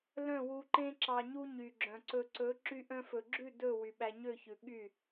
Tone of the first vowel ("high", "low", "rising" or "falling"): falling